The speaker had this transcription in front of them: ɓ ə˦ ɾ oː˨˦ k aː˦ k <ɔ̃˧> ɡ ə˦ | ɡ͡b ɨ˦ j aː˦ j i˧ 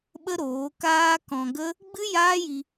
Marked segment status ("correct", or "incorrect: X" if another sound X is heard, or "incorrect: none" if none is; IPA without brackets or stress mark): correct